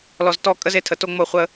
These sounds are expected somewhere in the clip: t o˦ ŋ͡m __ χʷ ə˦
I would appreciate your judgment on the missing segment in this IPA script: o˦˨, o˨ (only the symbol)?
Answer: o˦˨